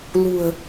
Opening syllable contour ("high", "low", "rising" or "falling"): low